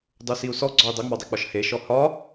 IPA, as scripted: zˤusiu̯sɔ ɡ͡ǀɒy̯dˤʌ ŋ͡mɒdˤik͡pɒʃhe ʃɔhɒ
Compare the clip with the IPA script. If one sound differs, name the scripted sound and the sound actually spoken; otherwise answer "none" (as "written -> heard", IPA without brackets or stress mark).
zˤ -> dˤ